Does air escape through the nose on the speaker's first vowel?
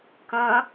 yes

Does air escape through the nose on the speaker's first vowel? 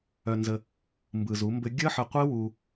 no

